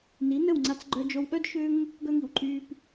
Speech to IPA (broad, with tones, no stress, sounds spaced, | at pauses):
n i˩˥ n ə˥˩ w ŋ͡ǀ a˧ t͡s ɡ͡ǃ œ˧ d͡ʒ o˧ w ɠ œ˥ d ʃ ø˥ ŋ | ɡ œ˥ ŋ i˩ w ǃʼ yː˧ p